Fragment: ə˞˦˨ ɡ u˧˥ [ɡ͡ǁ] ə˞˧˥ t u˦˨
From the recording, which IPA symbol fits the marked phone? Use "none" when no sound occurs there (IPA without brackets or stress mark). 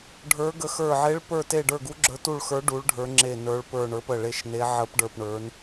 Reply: ɡ͡ǁ